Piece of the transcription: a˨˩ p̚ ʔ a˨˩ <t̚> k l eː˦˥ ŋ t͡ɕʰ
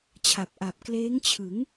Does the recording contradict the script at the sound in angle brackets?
yes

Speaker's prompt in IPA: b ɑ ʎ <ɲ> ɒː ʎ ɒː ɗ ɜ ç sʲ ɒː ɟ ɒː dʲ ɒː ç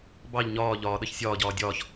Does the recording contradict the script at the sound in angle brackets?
no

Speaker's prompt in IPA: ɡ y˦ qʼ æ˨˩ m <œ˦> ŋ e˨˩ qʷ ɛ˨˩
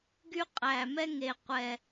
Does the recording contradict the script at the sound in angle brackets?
yes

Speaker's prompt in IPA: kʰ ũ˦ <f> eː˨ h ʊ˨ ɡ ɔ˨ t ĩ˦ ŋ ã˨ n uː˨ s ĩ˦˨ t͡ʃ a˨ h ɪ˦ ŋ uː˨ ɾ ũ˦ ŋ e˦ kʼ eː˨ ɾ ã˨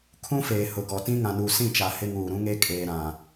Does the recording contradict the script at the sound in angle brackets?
no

